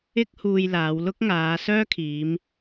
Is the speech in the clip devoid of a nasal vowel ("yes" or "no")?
yes